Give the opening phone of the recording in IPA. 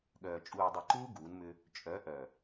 ɠ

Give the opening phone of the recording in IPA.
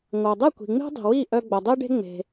ŋʷ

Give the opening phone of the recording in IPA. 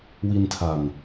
w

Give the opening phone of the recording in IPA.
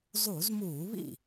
zˤ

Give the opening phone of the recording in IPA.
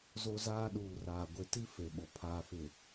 z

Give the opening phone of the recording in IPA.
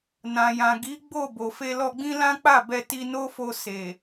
n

